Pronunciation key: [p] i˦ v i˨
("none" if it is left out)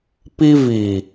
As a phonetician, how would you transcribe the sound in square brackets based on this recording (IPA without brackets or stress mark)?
p